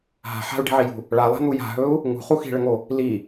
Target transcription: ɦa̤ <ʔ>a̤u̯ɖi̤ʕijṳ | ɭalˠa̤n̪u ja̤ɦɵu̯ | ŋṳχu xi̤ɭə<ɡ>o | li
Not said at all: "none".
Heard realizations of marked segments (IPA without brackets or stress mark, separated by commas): ħ, ŋ